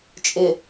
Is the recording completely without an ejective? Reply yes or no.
no